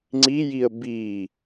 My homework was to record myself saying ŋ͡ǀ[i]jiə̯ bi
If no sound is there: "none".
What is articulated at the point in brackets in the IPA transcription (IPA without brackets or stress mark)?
i